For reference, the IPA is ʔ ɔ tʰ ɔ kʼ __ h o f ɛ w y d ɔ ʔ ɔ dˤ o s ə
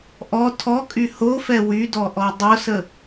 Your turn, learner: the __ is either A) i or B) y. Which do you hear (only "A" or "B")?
B